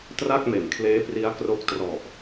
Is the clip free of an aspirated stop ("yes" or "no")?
no